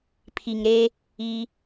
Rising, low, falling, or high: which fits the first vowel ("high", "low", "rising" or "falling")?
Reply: low